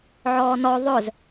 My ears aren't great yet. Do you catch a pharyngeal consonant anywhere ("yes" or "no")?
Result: yes